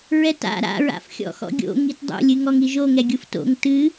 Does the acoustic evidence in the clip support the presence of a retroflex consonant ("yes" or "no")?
no